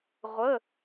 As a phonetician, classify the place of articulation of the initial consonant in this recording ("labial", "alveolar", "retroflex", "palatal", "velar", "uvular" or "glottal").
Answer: uvular